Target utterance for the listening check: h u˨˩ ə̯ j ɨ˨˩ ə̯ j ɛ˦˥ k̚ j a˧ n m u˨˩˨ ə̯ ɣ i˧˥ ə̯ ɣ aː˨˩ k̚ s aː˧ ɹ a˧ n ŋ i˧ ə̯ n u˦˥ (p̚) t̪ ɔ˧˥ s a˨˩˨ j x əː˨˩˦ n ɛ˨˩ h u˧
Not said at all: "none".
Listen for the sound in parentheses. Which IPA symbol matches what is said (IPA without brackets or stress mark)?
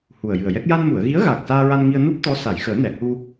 p̚